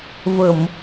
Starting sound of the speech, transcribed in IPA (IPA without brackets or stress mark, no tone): v